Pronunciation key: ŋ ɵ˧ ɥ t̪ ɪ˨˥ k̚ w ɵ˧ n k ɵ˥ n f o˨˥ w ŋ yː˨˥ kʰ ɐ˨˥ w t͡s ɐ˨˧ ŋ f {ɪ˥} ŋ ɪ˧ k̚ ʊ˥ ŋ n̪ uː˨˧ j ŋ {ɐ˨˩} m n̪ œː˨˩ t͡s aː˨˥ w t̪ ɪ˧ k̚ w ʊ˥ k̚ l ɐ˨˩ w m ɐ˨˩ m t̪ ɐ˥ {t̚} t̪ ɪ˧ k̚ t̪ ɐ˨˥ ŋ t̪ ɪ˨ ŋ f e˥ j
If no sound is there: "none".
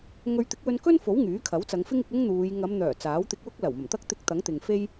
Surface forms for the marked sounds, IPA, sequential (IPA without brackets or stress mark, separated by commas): ɪ˥, ɐ˨˧, k̚